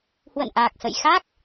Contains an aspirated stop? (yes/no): no